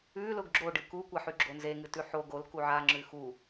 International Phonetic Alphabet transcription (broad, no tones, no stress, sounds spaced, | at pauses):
ʉ l ʊ ɡ ɡ͡ǁ o ɖ ɨ k u kʷ a ħ ʉ ɡ͡ǁ o n z e ŋ ɨ t ʉ ħ o ɡ o l k u ʕ a ŋ͡ǁ ʉ x u